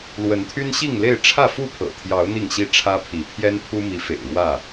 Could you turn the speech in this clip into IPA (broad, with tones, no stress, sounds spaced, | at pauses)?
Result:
l w ə˨˦ n t̪ʰ y˦ n ɕ i˥˨ ŋ l e˥˨ ɪ̯ ʈ͡ʂʰ ä˥˨ f u˥˨ pʰ ɤ̰˨˩ t̪ʰ j ɑ˨˦ ʊ̯ n̪ i˥˨ ŋ ɕ i˥˨ ʈ͡ʂʰ ä˦ pʰ i˨˦ pʰ j ɛ˦ n pʰ u˦ m i˨˦ f ḛ˨˩ ɪ̯ ɻ w ä˥˨